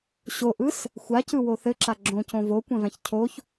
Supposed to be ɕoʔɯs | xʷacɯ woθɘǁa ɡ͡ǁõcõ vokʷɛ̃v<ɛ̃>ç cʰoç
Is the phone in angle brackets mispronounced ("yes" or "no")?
yes